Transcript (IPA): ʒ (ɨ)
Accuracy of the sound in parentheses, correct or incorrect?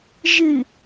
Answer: correct